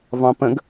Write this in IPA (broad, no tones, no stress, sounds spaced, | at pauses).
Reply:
v ɑ̃ p ə̃ ɡ